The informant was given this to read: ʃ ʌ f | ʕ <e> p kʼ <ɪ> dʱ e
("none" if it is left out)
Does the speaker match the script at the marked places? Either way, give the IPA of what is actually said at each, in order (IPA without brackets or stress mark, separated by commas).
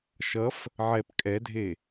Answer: ɛ, ɛ